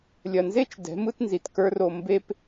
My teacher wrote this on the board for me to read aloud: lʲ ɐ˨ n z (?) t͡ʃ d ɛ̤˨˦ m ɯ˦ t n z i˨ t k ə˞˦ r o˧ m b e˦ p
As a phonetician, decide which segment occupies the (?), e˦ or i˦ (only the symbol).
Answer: e˦